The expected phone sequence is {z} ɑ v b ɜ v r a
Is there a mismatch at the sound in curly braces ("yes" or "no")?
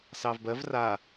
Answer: yes